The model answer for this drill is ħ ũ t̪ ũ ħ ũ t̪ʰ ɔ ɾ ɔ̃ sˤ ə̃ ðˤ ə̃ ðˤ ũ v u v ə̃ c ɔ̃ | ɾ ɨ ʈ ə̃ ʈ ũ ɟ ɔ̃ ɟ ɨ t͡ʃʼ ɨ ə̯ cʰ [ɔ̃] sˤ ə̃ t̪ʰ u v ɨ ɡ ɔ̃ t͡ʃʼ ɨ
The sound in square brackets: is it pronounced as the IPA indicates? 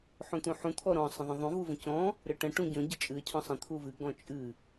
yes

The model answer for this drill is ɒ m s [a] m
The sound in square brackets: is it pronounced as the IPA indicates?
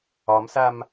yes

